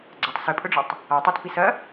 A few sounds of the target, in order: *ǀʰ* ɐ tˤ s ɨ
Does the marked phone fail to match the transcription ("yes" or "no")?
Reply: yes